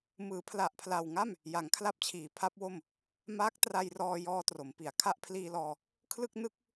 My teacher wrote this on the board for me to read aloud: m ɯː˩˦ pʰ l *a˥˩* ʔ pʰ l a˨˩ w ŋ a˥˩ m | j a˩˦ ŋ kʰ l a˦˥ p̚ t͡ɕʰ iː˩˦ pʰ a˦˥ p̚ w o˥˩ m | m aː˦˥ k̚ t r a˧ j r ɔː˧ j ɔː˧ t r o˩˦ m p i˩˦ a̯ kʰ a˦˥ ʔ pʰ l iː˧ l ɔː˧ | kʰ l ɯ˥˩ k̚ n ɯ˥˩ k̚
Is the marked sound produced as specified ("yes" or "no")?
no